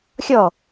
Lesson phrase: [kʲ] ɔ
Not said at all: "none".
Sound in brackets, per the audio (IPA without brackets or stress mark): xʲ